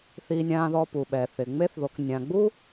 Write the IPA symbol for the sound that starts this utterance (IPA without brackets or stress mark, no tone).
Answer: θ